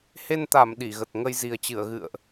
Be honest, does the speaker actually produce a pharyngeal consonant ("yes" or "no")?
no